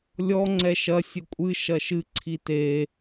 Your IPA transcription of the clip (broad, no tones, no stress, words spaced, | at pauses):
lʲɔ ŋ͡ǀɛʃɐ sʲɘkʷʼɨ ʃɐʃɨ ǀʰite